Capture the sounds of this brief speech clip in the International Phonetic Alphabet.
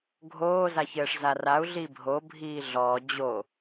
ɡʱ oː z a ç ɘː ʂ z a r a u̯ ɮ iː bʱ o bʱ iː ɮ ɔː d͡ʑ o

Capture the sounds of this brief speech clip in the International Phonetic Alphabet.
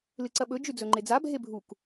l ɨ ǀ ɐ ɓ ɵ d͡ʒ ʉ d͡z ɵ ŋ͡ǃ e d͡z a bʱ e bʱ u k

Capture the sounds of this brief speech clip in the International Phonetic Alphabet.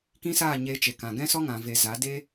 k ĩ˦ s aː˦˨ ɲ e˧ t͡ʃ e˨ k ã˨ ɡ ɛ̃˦ s ɔ˦ ŋ ã˨ v e˨ z a˨˦ d e˦

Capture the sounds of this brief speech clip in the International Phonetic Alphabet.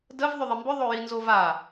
d ə v ðˤ ʏ ðˤ ɪ m b ʏ ðˤ o j i n z o v a

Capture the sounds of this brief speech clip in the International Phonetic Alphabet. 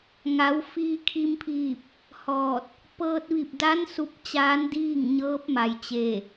ŋ a˩˧ w f iː˧ kʰ i˧ m pʰ iː˧˩ p̚ | h ɔː˧˩ t̚ | p ɤː˧ t̚ ʋ i˧˩ p̚ d a˧˥ n s u˧˥ p̚ t͡ɕ aː˧˥ n d iː˥˨ ŋ ɲ ɤː˧˥ p̚ m a˩ j t͡ɕ eː˧˩

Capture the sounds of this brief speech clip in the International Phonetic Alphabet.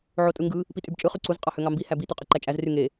ʕ o tʼ ɯ ŋ ɡ ɯ | p i tʼ y b t͡ʃʼ ɯ χ y ǀ u z qʼ ɑ h ø ŋ ɑ m b i h æ b i t ø qʼ ɯ ǃ æ t͡ʃʼ æ z r y ŋ e

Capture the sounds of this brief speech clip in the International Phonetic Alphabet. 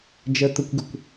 d͡ʒ ɜ t̪ ʊ kʷ ɡ ə kʷ

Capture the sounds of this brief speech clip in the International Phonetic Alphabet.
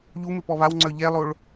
ʎ u m ɪ p ɔ β a w ŋ͡ǀ œ ʎ ɛ lˠ o ɭ

